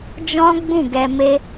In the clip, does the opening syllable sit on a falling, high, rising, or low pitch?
high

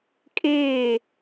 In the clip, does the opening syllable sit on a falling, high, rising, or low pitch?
falling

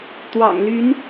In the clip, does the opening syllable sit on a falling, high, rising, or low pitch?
low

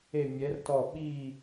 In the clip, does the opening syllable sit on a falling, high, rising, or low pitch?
falling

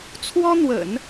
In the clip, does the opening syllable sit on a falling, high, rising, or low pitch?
high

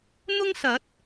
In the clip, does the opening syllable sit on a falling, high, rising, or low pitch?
high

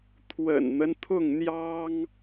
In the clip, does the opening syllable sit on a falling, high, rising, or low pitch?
low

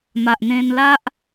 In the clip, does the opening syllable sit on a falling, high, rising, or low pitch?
low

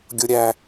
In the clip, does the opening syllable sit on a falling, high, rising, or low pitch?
low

